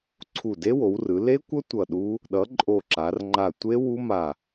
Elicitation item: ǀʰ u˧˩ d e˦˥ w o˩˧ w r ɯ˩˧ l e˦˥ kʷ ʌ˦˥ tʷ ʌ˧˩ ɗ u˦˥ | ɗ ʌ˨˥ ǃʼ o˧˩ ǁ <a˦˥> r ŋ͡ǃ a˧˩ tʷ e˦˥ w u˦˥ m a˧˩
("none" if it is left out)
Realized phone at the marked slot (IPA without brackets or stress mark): a˩˧